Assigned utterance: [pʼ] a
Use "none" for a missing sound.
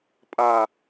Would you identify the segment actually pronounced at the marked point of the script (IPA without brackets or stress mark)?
pʼ